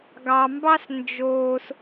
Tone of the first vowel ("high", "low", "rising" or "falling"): low